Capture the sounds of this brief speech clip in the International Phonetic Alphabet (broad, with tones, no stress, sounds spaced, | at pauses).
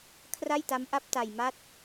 kʰ r a˥˩ j t a˦˥ m ʔ a˦˥ p̚ t a˧ j m a˦˥ t̚